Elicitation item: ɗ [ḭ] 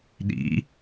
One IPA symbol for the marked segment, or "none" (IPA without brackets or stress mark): ḭ